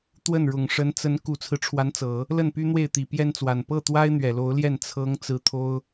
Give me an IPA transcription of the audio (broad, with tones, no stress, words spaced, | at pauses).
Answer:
t̪wə˥˩nɻʊ˨˩ŋ ʂə˧˥nt͡sə˧˥n ku˨˩t͡sʰɹ̩˦ʈ͡ʂʰwa˧˥nt͡sɤ˨˩˦ | lə˥˩npy˥n̪we˥˩ɪ̯t̪i˨˩ pjɛ˥nt͡swa˨˩n pɤ˥˩t̪wa˥ɪ̯ n̪ɥɛ˨˩lo˧˥ʊ̯ljɛ˥˩n t͡sʰɤ˧˥ŋ t͡sɹ̩˧˥t̪ʰo˥ʊ̯